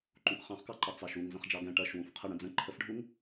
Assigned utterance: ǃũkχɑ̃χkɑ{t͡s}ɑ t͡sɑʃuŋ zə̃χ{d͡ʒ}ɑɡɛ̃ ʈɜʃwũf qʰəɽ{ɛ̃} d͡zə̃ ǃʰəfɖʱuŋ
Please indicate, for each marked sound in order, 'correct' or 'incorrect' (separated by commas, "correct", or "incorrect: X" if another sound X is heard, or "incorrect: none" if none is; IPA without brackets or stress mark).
incorrect: ǃ, correct, incorrect: ə̃